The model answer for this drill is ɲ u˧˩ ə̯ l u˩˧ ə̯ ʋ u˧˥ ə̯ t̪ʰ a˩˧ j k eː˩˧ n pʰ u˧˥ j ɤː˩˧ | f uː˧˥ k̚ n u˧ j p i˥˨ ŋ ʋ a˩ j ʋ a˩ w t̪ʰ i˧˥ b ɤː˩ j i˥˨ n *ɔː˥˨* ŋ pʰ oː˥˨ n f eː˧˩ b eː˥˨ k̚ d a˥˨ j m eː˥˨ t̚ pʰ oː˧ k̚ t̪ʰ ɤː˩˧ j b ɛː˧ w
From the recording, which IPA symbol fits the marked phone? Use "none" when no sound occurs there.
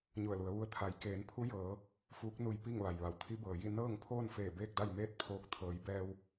ɤː˥˨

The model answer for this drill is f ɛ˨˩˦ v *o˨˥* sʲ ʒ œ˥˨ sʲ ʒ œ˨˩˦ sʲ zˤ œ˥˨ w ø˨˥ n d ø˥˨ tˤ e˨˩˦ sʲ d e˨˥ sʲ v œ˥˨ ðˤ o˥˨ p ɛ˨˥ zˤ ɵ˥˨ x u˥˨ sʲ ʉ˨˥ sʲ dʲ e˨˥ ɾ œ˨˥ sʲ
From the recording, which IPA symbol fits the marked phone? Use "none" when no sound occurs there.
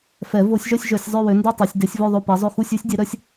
o˨˩˦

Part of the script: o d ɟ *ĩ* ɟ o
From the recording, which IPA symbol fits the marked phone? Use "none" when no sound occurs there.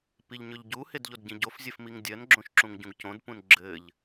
ĩ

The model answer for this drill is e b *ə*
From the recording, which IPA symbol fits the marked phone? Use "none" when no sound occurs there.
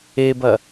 ɐ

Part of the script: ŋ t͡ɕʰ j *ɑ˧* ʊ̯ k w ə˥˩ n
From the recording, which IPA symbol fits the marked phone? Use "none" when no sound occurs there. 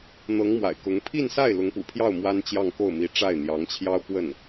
ɑ˥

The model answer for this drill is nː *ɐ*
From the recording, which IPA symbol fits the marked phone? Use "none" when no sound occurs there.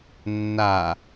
a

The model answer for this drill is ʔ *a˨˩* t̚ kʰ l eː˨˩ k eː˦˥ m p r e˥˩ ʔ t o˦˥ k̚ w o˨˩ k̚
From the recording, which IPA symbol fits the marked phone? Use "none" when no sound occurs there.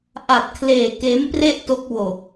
a˨˩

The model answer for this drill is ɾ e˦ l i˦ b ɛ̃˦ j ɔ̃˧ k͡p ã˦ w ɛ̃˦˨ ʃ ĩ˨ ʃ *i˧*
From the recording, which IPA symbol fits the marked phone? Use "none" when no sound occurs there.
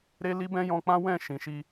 i˧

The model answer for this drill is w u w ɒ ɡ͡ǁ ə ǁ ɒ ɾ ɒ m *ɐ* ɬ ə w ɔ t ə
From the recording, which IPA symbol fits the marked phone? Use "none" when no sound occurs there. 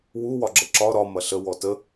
ɐ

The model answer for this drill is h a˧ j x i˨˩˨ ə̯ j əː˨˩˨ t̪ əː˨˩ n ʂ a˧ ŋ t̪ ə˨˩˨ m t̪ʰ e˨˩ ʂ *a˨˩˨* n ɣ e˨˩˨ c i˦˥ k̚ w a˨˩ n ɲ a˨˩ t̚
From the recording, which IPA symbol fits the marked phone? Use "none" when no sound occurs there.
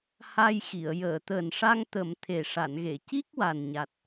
a˨˩˨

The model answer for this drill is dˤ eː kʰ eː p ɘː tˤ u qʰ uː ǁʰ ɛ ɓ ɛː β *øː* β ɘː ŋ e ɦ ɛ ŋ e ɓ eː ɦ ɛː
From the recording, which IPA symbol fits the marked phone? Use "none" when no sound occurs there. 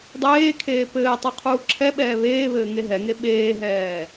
eː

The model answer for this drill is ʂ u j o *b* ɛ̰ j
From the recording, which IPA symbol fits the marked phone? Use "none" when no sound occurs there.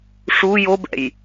b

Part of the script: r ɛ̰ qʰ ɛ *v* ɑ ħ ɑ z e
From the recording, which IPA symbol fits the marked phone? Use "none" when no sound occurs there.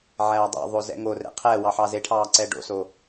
w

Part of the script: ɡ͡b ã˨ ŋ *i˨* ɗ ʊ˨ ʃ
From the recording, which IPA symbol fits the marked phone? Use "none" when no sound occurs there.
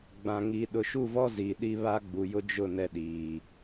i˨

